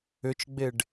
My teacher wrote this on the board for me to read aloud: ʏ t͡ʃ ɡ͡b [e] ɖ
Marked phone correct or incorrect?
correct